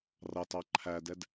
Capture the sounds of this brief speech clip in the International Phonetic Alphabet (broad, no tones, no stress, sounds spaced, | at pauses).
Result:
r ɑ t ɑ ǃʰ æ d ɛ d